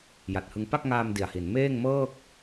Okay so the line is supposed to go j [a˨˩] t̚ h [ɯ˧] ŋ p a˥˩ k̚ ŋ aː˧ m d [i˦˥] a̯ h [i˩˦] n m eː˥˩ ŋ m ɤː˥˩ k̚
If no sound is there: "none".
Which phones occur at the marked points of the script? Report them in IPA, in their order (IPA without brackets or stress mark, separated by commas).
a˨˩, ɯ˧, i˨˩, i˩˦